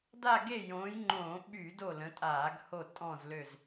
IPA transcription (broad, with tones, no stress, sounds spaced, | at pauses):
d a˦˨ ɡ e˦˨ j õː˨˦ j ŋ͡ǃ õː˧˩˧ ɓ yː˧˩˧ d o˦˨ l ə̃˨˦ tʼ aː˧˩˧ ɡ h o˦˨ tʼ ɔ̃˦˨ z l ø˦˨ z